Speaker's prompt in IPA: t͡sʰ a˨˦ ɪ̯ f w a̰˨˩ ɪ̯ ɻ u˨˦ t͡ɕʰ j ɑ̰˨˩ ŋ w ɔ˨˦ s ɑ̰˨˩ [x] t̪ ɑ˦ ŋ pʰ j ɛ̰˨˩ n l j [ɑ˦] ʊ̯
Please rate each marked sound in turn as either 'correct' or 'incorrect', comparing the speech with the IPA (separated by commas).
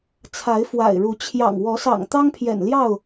incorrect, incorrect